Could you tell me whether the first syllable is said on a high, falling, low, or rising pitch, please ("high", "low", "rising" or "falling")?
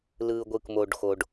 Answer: low